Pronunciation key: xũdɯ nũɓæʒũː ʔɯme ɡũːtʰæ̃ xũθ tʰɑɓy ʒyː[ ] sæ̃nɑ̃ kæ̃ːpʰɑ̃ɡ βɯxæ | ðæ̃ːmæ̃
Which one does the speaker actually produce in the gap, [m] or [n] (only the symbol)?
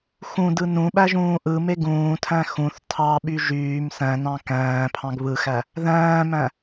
m